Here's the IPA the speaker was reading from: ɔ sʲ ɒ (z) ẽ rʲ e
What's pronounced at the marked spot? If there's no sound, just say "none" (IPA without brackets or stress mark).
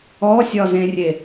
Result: z